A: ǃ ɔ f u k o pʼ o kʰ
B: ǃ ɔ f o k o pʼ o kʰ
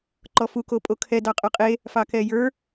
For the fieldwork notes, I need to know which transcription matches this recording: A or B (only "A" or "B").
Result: A